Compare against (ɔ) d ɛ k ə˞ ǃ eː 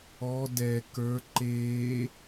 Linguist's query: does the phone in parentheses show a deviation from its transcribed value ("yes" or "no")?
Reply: no